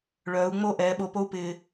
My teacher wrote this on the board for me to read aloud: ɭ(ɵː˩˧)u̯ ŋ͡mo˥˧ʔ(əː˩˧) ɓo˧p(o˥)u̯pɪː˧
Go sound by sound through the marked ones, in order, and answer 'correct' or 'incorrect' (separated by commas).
incorrect, incorrect, correct